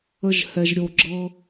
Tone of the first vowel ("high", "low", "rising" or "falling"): high